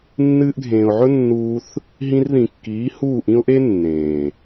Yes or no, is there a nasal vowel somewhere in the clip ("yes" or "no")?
yes